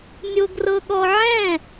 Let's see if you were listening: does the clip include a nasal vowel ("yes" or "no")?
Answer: yes